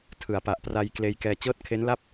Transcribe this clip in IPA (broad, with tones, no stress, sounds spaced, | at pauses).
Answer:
tʰ ɯ˩˦ a̯ p a˨˩ ʔ p r a˧ j k l eː˧ j k ɛː˧ t͡ɕ ɤː˥˩ t̚ kʰ e˦˥ n l a˥˩ p̚